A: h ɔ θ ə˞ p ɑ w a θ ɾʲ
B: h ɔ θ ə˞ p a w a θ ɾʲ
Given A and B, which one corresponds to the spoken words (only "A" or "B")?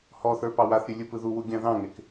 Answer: A